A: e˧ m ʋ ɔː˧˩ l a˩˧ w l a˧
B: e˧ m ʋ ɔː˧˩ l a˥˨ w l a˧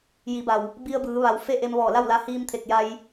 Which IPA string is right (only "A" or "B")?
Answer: B